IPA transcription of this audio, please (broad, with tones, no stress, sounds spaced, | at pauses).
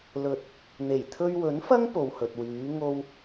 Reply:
l ɵ˨ t̚ | n̪ e˨˩ j t̪ʰ ɵ˧ ɥ w ɵ˨˥ n f ɐ˥ ŋ p o˨ w h ɵ˨ t̚ w yː˨˥ ŋ o˥ w